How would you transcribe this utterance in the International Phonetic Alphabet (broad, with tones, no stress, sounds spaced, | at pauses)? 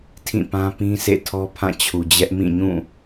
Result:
tʰ ĩ˦˨ p ã˦ p ĩ˦ s ḛ˦˨ tʰ ɔ˦ pʰ ã˦˨ t͡ɕʰ u˨ d͡ʑ ɛ˦ ʔ m ĩ˦˨ ɲ ũ˦˨